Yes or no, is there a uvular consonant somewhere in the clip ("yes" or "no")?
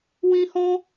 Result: no